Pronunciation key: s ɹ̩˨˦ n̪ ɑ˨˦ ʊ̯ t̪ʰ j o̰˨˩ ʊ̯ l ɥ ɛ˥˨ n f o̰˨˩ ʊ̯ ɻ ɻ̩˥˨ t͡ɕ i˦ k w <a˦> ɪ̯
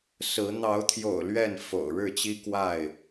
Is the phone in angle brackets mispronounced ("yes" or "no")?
yes